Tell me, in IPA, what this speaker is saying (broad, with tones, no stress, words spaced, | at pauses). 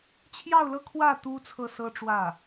t͡ɕʰjɑ˥˧ʊ̯lɤ˥˧kʰwä˥˩ t̪u˥ t͡sʰɤ˥˩sɤ˥ʈ͡ʂwä˥˩